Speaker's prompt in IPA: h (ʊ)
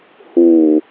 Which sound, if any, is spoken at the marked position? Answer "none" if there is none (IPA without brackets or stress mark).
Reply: u